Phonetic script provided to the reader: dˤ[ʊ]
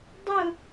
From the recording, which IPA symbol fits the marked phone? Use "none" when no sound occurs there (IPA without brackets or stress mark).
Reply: ʊ